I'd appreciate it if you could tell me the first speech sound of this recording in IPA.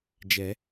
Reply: d͡ʒ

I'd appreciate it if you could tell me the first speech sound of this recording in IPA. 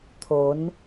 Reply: t̪ʰ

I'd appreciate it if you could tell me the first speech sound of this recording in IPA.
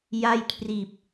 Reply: j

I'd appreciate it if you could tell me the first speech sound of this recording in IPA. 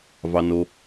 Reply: v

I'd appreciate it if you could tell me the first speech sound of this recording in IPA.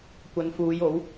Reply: kʷ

